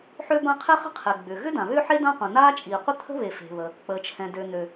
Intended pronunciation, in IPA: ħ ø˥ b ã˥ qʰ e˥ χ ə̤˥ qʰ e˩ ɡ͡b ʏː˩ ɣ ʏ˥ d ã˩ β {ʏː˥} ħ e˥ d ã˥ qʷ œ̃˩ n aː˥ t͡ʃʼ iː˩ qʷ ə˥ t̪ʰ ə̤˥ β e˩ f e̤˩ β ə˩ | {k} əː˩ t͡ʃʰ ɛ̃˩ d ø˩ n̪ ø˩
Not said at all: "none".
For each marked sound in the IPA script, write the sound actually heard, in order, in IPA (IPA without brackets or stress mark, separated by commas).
ʏː˥, k͡p